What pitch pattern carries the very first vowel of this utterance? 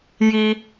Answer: low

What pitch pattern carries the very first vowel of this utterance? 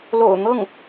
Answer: low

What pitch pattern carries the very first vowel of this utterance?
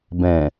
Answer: low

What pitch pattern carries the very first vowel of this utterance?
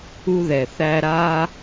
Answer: high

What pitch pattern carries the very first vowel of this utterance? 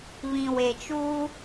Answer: low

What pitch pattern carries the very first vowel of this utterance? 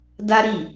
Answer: high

